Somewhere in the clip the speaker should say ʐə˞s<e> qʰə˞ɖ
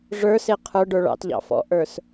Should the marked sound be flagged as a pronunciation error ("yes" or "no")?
no